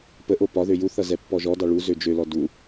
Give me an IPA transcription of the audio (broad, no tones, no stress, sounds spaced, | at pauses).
p ə ʔ o p ɒ ð ø j u θ ʌ z ɛ pː ɔ ʒ ɔ d ɑ ɭ u z ø d͡ʒ ø l ɔ d u